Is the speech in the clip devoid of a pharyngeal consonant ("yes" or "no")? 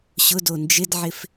no